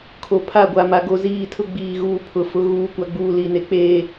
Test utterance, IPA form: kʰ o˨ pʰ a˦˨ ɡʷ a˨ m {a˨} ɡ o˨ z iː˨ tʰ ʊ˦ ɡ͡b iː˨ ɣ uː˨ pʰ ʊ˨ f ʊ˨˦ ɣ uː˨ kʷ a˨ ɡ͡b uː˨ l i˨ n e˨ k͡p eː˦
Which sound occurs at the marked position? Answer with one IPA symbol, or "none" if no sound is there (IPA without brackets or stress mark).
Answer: a˨